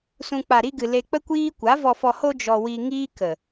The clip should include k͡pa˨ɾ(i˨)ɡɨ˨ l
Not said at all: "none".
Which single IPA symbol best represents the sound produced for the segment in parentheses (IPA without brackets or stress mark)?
i˧